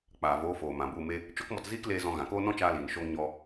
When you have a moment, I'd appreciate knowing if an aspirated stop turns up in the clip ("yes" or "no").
no